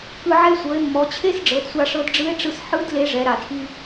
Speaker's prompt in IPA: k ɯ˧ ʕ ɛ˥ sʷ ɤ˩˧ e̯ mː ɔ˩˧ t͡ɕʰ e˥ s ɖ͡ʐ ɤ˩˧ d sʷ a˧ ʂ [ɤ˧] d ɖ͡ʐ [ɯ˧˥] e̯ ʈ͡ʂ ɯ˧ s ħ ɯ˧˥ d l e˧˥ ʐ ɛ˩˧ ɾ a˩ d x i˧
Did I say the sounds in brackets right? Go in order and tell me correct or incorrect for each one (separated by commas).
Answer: correct, correct